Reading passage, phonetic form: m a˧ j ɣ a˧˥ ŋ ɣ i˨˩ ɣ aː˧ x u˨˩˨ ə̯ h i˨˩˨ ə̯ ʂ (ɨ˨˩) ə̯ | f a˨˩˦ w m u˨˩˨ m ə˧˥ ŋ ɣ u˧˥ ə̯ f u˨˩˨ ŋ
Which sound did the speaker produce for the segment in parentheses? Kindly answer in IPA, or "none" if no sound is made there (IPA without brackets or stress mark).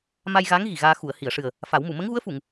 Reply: ɨ˨˩